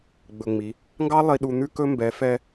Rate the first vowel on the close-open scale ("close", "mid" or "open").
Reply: mid